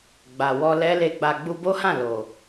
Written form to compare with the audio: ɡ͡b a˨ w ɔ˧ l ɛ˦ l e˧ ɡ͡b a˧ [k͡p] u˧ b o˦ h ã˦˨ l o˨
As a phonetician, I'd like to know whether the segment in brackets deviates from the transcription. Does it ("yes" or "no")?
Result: yes